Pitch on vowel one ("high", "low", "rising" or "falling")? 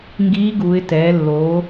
rising